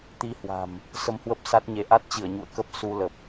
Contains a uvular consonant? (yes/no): no